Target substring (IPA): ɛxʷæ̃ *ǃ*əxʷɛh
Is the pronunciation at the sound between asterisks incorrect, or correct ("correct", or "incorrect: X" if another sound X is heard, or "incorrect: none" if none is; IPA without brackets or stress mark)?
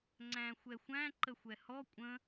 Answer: correct